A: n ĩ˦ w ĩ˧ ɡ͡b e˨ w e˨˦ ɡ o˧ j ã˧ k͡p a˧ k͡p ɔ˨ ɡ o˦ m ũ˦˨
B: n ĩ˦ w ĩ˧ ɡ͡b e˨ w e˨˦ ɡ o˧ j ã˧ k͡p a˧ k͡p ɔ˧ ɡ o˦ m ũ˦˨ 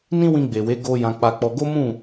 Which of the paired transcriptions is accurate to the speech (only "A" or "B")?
B